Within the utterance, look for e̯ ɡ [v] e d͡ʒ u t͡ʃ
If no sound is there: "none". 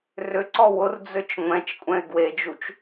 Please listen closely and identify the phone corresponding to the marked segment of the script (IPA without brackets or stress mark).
w